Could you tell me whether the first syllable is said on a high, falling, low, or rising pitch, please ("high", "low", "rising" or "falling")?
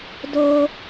high